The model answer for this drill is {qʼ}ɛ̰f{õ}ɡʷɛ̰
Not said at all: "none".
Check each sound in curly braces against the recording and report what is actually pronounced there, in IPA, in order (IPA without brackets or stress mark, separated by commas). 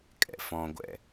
kʼ, ɔ̃